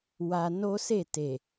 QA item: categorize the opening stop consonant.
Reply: plain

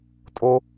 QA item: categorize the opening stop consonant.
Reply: ejective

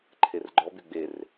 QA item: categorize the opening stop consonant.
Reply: click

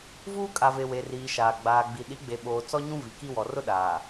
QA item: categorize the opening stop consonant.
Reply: ejective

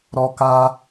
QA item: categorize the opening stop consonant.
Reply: plain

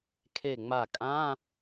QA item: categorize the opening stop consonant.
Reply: aspirated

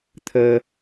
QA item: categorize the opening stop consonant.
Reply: aspirated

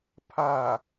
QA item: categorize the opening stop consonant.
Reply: aspirated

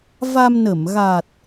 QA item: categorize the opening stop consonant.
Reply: plain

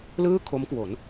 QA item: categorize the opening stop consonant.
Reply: aspirated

